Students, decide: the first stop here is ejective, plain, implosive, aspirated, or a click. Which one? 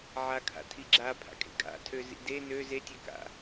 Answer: aspirated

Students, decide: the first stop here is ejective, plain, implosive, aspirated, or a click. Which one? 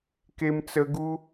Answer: plain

